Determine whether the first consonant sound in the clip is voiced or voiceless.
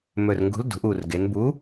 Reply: voiced